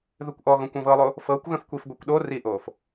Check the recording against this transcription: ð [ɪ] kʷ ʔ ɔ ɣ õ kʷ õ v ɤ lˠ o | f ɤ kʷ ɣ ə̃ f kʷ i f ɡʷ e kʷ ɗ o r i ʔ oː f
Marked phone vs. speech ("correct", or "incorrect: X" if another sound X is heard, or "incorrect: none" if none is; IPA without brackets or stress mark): incorrect: ɨ